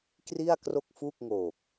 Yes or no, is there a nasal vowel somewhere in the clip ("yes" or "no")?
no